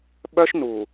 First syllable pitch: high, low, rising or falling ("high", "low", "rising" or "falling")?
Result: high